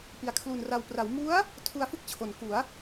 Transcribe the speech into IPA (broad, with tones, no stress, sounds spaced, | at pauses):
p i˨˩ a̯ kʰ l u˨˩ n r a˨˩ w p r a˩˦ w m u˦˥ a̯ | tʰ u˧ a̯ f ɯ˥˩ k̚ t͡ɕʰ o˩˦ n k u˩˦ a̯